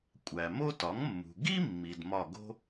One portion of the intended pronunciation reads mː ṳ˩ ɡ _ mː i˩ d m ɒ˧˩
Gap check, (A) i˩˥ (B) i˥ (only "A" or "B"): B